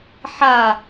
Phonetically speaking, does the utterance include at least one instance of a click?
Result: no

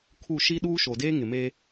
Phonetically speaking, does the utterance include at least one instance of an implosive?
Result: yes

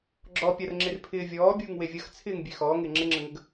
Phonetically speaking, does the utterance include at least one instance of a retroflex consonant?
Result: no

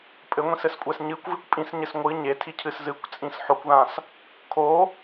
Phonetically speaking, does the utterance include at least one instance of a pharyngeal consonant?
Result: yes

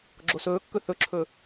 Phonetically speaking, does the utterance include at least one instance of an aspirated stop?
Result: yes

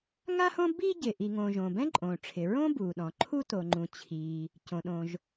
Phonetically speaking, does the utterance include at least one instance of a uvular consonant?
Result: no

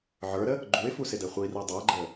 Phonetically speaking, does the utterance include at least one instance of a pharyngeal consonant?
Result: yes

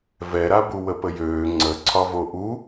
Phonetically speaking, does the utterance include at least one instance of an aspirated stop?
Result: yes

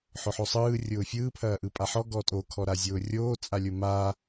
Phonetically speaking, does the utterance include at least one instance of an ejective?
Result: yes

